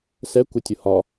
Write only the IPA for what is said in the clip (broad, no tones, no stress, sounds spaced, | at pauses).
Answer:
s ɛ kʷ ɪ tʲ ʊ h ɒ